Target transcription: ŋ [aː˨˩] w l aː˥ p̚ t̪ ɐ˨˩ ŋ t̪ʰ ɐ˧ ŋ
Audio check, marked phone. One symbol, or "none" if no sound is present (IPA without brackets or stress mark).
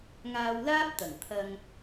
aː˧